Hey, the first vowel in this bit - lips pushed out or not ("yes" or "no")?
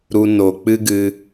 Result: yes